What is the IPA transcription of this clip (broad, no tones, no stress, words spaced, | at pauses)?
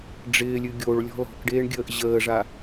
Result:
ɖ͡ʐɪːlʲɨ ɡʲoɭ lʲɔ̤lɔ̤kɖeːɳ ɡʲəːʔʑəːʐa